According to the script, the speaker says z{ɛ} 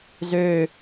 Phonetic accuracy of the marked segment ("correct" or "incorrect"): incorrect